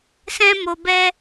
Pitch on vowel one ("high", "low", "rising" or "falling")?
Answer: high